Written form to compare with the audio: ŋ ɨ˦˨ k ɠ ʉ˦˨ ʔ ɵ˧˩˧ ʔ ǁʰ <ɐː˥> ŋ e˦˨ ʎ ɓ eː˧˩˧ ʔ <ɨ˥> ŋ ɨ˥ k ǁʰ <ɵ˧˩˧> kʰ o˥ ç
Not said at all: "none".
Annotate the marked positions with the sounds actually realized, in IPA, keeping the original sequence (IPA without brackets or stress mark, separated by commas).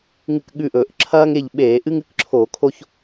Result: ɐː˥, ɨ˥, o˧˩˧